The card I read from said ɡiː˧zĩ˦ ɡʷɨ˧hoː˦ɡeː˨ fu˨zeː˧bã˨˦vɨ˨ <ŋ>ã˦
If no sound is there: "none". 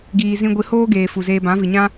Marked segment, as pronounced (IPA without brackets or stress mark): ɲ